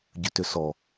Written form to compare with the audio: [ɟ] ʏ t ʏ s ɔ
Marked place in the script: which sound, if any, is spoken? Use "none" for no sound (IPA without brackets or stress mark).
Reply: ɟ